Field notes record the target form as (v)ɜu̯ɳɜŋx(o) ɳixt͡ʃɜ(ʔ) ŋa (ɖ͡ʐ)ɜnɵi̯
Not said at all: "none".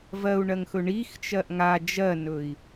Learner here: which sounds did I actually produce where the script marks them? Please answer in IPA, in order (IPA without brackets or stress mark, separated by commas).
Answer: v, ɵ, ʔ, d͡ʒ